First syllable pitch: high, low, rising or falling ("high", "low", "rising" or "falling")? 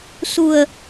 low